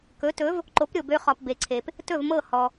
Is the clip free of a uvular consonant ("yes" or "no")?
no